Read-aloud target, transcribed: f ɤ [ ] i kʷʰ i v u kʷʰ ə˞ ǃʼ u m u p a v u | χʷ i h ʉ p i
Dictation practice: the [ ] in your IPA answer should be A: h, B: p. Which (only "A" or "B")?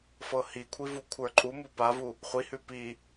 A